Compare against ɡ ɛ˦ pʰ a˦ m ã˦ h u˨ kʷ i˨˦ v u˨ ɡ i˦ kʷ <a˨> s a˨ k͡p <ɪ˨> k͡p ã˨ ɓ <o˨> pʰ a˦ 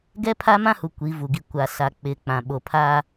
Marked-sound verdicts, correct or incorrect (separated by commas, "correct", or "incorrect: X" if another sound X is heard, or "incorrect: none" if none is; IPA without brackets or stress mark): correct, correct, correct